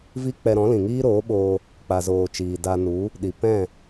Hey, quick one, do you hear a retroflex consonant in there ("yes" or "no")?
no